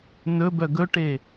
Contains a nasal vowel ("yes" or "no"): no